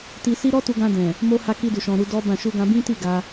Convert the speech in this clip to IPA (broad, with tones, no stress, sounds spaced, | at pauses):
t i˧ s i˦ ɾ ɔ˦ t u˧ ɡ ã˧ d ɛ̃˨ | m o˧ h a˧ k i˧ d u˨ ʃ ɔ̃˨ ɾ u˧ d ɔ˦ b ã˦˨ ʃ u˧ ɡ ã˧ b ĩ˦ t i˦˨ ɡ a˧